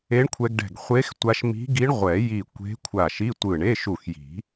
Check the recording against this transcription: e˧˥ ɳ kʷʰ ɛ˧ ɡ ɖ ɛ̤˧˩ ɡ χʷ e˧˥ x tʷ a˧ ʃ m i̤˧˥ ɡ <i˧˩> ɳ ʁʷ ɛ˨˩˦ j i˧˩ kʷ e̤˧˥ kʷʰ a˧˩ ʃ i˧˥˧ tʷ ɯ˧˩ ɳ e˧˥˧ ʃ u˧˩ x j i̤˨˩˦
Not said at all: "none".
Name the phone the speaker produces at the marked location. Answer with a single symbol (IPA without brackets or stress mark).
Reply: i˧˥